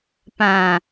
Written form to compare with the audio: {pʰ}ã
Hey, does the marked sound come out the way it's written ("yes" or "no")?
no